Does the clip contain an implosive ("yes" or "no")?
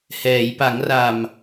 no